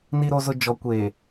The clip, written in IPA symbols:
n i˨ ɾ o˨ z ʊ˨ d͡ʒ ɔ˨ kʷ eː˨

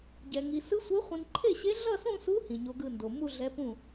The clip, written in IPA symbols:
ɟ ɛ˨ ŋ i˨ s ɯ˧˥ sʷ e˧˥ χʷ ĩ˨ n ǃʰ e˥˩ ɕ e˧˥ ɮ ʌ˥˧ s ũ˥˧ s u˧˥ h ĩ˨ ɲ o˧˥ ɡ ɯ˥˧ n d o˨ m u˥˧ ɮ ɛ˧˥ p ũ˥˩

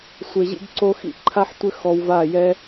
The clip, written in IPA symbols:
sʷ e˨ ʑ ḭ˧ ɡ ǀ o˧ x ḭ˦ ǃʰ a˦ ħ tʷ ɘ˦ x ɔ˧ w v a˦˨ j ɛ˦

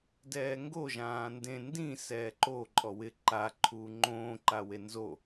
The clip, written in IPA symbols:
d ɛː ŋ ɡ o ʒ ãː n d ẽ n d ĩ s ɛː ǃ o ǃʼ ɔ w ɪ ǃ a ǃʰ uː ŋ͡ǃ õː ǃ a w e n z o

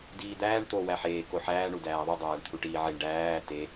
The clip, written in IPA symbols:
d iː d̪ æː ɳ t̪ o w æ ħ eː k o ħ æː ɳ u d æː ðˤ u dˤ æː ɳ t̪ʰ u ʈ iː ʕ i ɳ ɖ æː t e

